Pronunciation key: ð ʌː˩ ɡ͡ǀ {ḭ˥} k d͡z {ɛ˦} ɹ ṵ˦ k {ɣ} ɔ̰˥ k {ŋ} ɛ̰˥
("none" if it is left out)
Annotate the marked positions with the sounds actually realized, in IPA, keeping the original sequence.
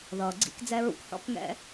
ḭ˥, ɛ˦, ħ, ŋ

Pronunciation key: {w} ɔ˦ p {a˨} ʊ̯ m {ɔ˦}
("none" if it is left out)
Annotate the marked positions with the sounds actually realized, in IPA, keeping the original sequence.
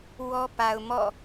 w, a˨, ɔ̰˦˨

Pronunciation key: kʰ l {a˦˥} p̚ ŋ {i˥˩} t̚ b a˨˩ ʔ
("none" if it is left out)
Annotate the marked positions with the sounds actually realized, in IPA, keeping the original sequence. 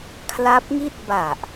a˦˥, i˥˩

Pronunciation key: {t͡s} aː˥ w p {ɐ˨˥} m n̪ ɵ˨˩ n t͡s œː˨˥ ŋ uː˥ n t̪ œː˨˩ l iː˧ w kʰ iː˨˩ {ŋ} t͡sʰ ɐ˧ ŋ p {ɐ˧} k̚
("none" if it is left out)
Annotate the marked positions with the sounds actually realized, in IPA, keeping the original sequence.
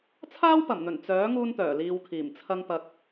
t͡sʰ, ɐ˨˩, m, ɐ˧

